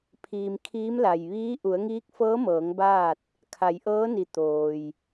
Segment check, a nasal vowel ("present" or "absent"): absent